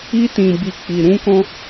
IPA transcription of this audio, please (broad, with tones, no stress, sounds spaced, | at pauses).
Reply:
i˦ t ĩ˧ b i˧ k͡p i˨ ɾ ũ˧ k ɔ̃˧